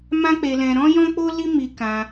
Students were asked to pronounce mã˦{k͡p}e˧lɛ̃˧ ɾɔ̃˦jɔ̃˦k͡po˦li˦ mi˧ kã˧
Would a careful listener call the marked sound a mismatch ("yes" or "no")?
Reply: no